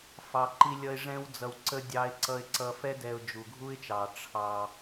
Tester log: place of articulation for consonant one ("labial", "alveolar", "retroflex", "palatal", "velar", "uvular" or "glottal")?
labial